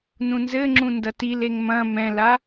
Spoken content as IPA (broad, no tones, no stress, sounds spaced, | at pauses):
n ũ n z ɘ ŋ͡ǁ ũ n d ɐ t i l e ŋ m ɐ̃ m ɛ̃ l a